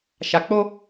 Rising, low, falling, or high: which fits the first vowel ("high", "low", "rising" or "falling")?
low